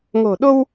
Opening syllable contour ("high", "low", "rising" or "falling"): low